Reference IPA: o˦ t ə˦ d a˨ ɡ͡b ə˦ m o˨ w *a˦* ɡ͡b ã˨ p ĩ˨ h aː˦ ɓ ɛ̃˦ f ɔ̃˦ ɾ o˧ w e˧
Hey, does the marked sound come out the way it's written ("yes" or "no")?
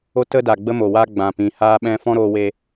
yes